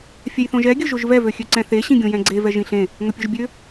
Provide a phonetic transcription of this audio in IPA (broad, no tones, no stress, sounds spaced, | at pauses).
fʲ ɛ j θ õ ʒ ɛ ɡʲ ɵ ʒ o ʒ v ɛ v ø xʲ ø ǀ ɛ̃ θ e ɕ ĩ ɡʲ õ j ɛ̃ ɡ͡ǀ e v ɛ ʒ ĩ ɬ ẽ | ŋ ɵ pʲ ɵ ʒ bʲ ø